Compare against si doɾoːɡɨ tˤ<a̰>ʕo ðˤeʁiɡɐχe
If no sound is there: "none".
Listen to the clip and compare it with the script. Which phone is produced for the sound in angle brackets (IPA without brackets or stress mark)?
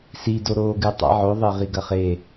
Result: a̰